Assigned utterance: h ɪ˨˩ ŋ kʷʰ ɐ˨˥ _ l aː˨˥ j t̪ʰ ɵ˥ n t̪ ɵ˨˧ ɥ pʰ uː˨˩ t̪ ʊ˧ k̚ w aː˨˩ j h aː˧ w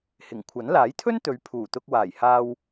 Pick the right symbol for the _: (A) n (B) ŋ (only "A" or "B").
A